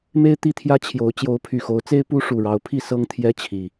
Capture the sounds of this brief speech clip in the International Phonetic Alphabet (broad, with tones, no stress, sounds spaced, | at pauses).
m e˦ ɪ̯ t̪ i˥˨ t̪ʰ j ä˦ t͡ɕʰ j o˨˦ ʊ̯ t͡ɕ j o˨˦ ʊ̯ pʰ y˨˩ x o˨˦ ʊ̯ t͡s e˦ ɪ̯ p u˦ ʂ u˨˩ ɻ ɑ˨˦ ʊ̯ pʰ i˥˨ s ɤ˦ ŋ t̪ʰ j ɛ˦ t͡ɕʰ i˨˩